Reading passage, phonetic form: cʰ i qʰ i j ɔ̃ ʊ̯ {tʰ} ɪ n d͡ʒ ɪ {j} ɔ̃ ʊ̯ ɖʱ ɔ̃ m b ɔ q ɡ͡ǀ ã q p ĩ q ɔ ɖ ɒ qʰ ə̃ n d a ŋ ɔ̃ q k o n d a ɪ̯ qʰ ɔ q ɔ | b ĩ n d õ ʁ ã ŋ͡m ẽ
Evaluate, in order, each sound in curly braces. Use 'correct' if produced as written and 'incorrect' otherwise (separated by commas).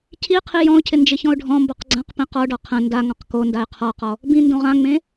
incorrect, incorrect